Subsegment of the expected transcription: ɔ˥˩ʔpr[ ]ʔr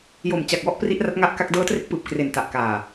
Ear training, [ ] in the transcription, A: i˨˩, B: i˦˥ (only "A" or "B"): B